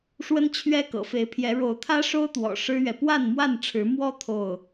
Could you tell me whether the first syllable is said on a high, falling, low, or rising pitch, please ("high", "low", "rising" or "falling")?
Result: high